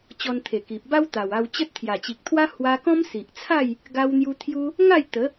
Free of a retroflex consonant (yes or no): yes